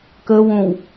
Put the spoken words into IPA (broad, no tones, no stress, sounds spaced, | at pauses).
k ə w õ w